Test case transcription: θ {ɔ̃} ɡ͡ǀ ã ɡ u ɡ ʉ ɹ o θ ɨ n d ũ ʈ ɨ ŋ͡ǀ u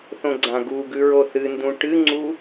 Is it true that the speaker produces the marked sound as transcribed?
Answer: no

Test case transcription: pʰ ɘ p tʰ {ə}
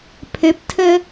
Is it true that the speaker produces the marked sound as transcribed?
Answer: yes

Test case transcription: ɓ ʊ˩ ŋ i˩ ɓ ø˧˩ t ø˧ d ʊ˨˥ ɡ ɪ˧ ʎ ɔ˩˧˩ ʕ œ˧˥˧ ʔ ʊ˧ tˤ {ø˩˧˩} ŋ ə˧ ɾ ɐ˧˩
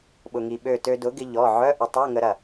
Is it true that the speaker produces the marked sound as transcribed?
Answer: no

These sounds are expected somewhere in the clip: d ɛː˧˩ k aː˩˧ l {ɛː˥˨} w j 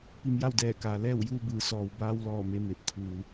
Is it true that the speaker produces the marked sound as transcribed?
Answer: yes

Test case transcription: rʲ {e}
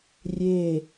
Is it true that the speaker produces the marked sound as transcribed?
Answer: yes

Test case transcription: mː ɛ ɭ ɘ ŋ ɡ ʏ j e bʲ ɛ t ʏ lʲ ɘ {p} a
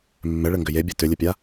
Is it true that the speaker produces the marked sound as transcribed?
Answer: no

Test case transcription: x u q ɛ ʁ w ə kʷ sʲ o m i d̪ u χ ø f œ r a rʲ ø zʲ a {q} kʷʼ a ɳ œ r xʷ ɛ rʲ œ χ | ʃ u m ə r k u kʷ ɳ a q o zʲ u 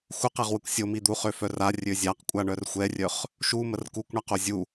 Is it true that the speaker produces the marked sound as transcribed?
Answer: yes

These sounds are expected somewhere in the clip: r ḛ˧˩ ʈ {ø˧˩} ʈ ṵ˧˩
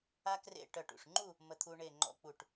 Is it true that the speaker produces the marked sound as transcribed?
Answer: no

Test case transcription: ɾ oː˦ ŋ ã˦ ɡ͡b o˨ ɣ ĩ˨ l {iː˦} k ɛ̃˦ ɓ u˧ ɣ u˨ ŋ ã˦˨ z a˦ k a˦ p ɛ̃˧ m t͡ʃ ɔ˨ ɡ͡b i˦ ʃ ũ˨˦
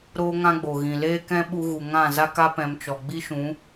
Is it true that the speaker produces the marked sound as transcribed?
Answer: no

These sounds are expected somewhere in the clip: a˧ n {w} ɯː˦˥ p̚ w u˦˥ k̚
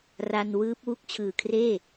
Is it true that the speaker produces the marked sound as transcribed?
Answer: yes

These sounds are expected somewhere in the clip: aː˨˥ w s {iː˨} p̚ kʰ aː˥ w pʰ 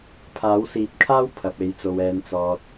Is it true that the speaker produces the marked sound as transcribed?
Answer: no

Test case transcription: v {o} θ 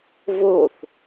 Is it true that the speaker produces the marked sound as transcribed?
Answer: yes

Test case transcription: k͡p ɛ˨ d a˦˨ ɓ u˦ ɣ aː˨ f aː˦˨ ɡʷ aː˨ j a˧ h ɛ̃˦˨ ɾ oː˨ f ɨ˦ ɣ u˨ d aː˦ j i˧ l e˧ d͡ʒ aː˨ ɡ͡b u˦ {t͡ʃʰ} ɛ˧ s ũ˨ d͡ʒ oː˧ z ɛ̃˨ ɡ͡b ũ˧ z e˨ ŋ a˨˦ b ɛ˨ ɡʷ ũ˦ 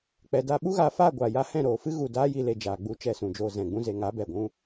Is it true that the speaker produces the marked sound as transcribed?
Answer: no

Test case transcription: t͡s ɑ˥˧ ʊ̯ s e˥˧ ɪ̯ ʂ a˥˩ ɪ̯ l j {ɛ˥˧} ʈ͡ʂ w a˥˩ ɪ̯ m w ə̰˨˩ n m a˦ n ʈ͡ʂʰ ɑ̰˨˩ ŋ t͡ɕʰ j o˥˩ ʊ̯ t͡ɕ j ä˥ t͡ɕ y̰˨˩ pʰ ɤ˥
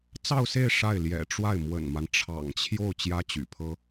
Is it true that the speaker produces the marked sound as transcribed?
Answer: no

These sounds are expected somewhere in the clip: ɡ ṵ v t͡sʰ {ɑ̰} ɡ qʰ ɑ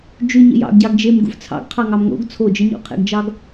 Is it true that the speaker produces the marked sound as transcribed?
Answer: yes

